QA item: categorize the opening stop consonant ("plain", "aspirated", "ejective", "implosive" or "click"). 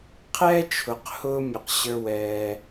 aspirated